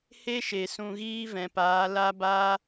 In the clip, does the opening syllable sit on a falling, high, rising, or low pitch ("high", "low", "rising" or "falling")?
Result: high